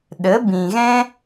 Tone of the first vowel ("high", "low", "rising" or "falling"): rising